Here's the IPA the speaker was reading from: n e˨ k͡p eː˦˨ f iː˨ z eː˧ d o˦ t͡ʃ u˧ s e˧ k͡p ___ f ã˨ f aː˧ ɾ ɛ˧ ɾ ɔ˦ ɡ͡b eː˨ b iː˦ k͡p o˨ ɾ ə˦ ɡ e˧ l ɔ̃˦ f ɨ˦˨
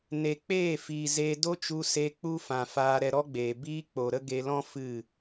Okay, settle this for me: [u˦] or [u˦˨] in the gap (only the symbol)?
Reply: u˦